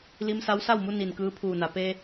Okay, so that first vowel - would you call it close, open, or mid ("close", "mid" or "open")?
close